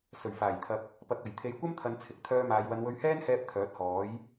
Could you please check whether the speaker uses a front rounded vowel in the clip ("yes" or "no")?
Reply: yes